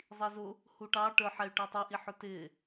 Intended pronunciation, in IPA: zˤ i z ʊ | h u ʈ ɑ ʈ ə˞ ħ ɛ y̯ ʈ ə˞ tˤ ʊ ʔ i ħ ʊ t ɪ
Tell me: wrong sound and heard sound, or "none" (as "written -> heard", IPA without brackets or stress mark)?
none